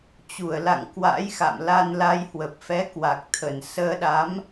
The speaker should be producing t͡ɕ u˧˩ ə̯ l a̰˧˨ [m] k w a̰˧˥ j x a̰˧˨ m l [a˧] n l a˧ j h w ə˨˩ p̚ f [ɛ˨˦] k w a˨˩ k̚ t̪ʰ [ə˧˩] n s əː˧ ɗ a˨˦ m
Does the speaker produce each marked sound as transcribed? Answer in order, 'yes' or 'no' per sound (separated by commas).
no, yes, yes, yes